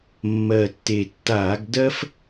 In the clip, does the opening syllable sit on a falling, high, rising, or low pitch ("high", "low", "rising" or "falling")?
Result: low